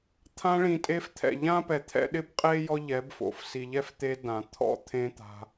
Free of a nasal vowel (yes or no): no